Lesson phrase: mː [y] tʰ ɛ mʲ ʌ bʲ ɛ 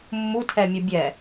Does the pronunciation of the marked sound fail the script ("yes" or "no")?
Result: yes